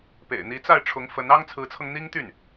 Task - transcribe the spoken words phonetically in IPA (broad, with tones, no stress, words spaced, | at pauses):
pḛ˨˩ɪ̯n̪i˧˥t͡sa˥˩ɪ̯ʈ͡ʂʰʊ˧˥ŋ fə˧˥n ɑ˥ŋt͡sʰɹ̩˧˥t͡sʰɤ˧ŋ n̪i˥ŋt̪y˥˩n